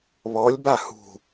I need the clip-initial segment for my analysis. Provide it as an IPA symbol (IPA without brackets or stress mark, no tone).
β